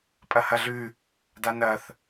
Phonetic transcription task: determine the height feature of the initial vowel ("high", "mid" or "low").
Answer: low